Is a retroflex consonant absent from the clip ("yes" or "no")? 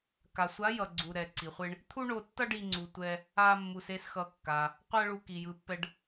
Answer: no